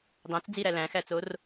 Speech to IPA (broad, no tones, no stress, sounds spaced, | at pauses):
dˤ æ̃ t͡s d͡z i ɾ æ l æ̃ x æ t͡s o r